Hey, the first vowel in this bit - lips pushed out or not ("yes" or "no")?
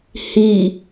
no